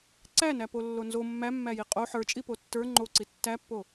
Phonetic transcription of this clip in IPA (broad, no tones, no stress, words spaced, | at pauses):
ǀænæ polːonzo mːæmːæji qʼo ħə˞t͡ʃʼi potːə˞ ŋ͡ǃoǀi tːæpːo